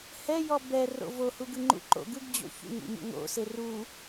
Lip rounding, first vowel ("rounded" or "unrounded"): unrounded